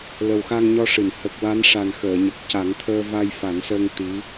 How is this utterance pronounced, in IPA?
lə˨˩wxa˧ŋɲɔ˧ʂɨ˨˩˨n hə˨˩k̚ wa˧˥nʂa˨˩nxəː˨˩˨ ɲə˨˩k̚ ca˨˩˦ŋt̪ʰəː˧ va˧j fa˨˩˦nsəː˧ŋ t̪i˧˥

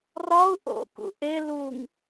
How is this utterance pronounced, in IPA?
rɒu̯ ʔo̰kṵ ʔe luŋ

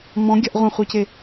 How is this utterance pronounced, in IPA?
mɔ̃ɡʲɐʔ ʁʷɐ̃χʷice

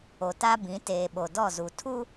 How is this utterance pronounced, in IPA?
o˨ta˦ bĩ˨˦teː˨ɓo˨ dɔ˦˨zu˨ tʰu˦

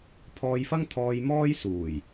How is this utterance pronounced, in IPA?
pʰɔː˧jfɐ˥ŋt̪ʰɔː˧j mɔː˥jsuː˨˩j

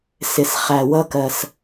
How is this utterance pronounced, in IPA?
sɪ˩sχæ˩wʌ˧kɜ˩s

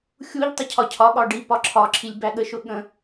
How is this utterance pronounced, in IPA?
xʲuʎ tˤʊcʰɒcʰɒɠɒ ɖi pɒǁʰɒǁʰilʲ bæɠəʃʊ ɠə̃

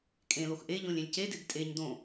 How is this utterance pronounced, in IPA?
kʼẽlox ʔe ʎõlʲẽlʲcedɪd tʼeɲ dõ

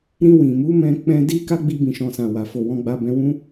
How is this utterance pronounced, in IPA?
ɾĩ˧wĩ˨mu˨˦ mɛ̃˦k͡pɛ̃˦ di˦ ka˦ɡ͡bi˧bĩ˨ʃɔ̃˨ sã˨wa˨ fo˨wɔ̃˧ɡ͡ba˧ bɛ̃˧wũ˦

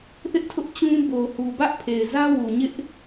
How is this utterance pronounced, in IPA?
θɪ˦ʔtʰʊ˦ʔt͡ɕũ˦ bo˨hu˨bä˦ʔpʰe˨ɪ̯ zä˦wu˨ɲɪ˦ʔ

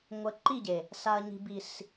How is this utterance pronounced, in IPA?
ŋʷə˨˦ ǃi˦˨ɟe˨ | sa˨ɐ̯ɲi̤˨ bi˨s

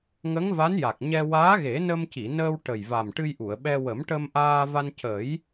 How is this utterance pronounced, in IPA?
ŋə˧˥ŋva˧˥n ja˨˩k̚ɲɛ˧ waː˧˥ɣe˨˩˦ nə˧mci˨˩˨nəː˧w ʈə˨˩jva˨˩m ʈɨ˧jʔu˨˩˨ə̯ɓɛ˧ wə˨˩˦mʈə˧mʔaː˧va˧n cə˨˩˦j

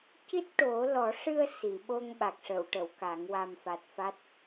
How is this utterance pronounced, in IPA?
ci˦˥t̚ʈo˨˩˦ lɔ˨˩˦ʂɨ˧ə̯ si˨˩˨ɓo˧ŋɓa˨˩k̚ʂə˨˩˨w ʈə˨˩˨wka˨˩˦ŋ wa˨˩mfa˨˩t̚ fa˦˥t̚

